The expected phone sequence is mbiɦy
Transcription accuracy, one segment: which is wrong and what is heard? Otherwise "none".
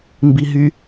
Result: none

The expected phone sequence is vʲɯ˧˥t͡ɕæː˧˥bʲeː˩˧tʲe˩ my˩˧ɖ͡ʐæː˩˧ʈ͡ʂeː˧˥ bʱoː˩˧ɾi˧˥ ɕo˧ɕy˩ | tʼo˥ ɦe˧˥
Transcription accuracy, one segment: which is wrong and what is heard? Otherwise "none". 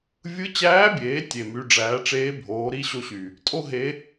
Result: none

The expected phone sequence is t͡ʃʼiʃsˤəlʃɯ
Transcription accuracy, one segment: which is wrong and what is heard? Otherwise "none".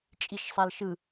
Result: ə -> a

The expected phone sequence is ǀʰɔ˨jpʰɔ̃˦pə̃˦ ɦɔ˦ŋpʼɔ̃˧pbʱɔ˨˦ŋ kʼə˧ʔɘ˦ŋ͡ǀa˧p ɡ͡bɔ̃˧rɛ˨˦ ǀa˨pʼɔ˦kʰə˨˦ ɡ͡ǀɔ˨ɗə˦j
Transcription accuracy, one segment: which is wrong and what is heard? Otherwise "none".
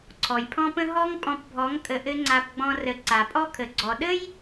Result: ɛ˨˦ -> ə˨˦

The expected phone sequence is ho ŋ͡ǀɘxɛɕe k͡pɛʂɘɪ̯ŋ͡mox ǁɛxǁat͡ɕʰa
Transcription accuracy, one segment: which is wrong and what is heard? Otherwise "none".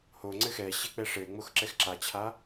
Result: none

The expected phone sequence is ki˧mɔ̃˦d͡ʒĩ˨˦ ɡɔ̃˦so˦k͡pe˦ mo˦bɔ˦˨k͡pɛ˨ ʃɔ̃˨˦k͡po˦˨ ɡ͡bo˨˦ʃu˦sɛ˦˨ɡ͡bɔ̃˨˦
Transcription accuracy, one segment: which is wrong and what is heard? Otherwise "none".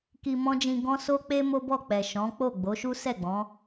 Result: ĩ˨˦ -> ĩ˧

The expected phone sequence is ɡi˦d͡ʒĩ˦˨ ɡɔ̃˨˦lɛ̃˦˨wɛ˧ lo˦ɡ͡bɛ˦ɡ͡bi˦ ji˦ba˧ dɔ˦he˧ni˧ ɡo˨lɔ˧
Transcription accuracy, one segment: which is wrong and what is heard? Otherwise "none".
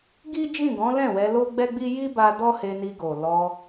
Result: none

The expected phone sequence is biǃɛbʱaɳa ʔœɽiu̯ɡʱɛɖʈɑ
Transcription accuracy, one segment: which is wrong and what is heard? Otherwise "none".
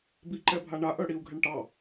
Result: ɖ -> ɳ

